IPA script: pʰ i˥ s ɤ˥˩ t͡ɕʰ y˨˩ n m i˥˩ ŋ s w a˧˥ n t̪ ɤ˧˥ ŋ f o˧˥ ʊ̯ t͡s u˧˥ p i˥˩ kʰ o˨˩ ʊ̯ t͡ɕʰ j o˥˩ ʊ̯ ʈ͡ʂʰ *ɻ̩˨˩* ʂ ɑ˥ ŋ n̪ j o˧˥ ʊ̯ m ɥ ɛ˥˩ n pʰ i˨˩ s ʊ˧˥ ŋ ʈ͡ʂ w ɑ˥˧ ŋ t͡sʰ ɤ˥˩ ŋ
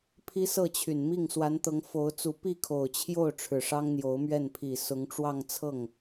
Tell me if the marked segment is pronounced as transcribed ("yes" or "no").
yes